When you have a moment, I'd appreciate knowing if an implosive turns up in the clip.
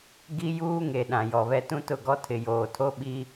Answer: yes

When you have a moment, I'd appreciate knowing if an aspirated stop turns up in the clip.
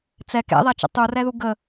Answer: no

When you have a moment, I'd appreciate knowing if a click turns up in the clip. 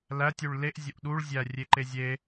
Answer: yes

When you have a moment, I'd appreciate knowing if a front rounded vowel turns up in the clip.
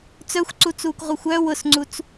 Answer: yes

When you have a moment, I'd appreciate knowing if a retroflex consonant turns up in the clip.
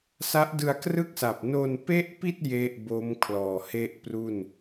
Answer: no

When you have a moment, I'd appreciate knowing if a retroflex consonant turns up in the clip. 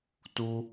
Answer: no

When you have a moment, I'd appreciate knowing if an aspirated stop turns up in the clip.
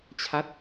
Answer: yes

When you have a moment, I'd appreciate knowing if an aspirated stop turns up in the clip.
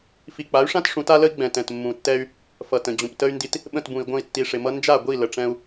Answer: no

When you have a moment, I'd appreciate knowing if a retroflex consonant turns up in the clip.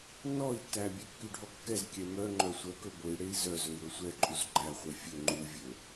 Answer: yes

